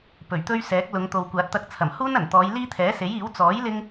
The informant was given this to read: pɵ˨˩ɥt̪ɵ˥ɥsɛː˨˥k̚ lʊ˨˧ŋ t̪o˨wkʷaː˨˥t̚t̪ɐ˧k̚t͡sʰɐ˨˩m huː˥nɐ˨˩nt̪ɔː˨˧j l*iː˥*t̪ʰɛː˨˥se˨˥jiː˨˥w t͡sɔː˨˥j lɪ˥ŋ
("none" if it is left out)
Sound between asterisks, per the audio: iː˥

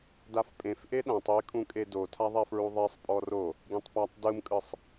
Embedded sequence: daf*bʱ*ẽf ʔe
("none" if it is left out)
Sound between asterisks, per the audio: pʼ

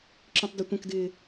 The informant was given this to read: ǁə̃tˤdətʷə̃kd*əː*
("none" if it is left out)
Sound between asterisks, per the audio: ɪː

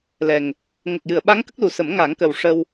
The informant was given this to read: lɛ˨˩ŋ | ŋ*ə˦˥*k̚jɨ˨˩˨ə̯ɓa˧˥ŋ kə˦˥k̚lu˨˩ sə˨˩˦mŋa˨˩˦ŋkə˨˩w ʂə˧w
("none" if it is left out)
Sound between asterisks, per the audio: ə˨˩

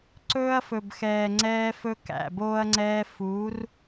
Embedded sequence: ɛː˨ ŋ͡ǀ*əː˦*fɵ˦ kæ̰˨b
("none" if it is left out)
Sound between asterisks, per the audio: ɛː˦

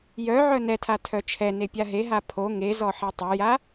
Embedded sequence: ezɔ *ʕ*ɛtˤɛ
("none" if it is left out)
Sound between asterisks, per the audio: ħ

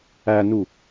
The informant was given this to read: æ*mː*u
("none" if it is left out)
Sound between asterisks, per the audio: n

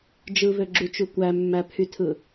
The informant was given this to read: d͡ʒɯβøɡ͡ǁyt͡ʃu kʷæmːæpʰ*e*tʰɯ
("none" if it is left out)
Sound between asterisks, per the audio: y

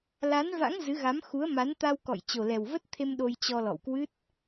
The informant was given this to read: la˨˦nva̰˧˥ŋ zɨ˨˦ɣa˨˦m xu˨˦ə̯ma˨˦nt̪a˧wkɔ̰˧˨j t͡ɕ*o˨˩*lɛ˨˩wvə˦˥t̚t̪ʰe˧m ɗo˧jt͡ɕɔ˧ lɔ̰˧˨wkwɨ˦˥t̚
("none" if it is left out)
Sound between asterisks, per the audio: o˨˩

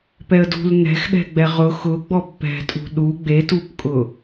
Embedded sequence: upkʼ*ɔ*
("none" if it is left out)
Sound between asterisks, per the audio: ʊ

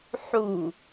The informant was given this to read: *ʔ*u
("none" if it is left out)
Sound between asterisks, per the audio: ħ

